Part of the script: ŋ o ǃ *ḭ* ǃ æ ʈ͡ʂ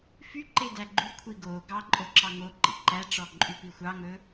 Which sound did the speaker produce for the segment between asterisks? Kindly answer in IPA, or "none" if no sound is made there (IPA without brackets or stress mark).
ḭ